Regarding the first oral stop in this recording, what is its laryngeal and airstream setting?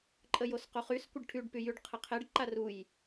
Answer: click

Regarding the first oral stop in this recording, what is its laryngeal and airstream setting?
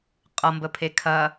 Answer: ejective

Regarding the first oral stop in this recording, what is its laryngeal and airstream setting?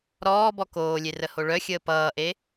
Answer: plain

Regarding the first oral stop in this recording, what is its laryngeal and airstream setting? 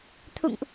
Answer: aspirated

